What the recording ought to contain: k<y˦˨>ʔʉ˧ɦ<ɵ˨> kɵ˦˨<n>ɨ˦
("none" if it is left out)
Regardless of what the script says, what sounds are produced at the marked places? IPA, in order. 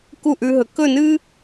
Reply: u˦˨, ɵ˨, n

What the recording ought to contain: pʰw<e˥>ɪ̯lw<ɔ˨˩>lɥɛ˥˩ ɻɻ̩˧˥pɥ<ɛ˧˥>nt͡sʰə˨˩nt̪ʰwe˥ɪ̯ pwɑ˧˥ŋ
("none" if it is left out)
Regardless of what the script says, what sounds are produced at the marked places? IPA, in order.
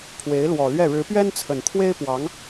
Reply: e˧˥, ɔ˨˩, ɛ˥

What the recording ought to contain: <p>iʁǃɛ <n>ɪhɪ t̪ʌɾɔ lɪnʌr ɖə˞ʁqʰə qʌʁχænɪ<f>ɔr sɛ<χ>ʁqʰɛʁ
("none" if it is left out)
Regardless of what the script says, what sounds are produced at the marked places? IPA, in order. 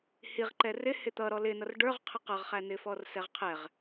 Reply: h, r, f, none

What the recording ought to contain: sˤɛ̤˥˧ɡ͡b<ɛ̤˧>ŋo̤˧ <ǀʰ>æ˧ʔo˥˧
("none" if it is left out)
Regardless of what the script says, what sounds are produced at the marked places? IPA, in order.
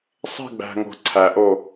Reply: æ̤˧, ǀʰ

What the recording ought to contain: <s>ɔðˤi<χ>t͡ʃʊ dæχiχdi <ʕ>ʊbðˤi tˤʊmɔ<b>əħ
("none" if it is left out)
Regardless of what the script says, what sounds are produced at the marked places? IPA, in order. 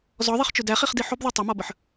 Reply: z, χ, ħ, b

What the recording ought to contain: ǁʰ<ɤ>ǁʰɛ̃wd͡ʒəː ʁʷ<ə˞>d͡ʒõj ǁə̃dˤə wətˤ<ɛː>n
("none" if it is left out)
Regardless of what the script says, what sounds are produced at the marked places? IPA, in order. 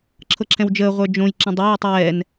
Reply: ɤ, ə˞, ɛː

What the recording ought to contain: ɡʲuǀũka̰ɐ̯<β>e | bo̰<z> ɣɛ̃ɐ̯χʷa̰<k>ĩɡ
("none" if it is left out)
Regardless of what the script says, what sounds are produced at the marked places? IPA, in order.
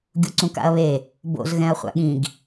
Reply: β, z, ɠ

